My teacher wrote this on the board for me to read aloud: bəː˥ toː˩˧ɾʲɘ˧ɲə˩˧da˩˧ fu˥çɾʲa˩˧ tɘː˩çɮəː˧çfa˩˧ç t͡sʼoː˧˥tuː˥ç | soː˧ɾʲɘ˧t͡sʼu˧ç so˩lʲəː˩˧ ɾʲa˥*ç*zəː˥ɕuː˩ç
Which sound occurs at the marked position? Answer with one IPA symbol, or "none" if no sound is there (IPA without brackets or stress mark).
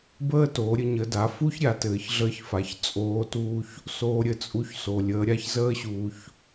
ç